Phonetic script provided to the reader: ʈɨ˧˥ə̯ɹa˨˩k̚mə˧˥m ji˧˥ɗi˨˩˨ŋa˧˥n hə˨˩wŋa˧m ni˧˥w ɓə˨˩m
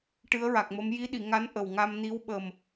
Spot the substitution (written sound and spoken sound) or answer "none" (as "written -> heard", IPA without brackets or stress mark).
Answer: h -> ʔ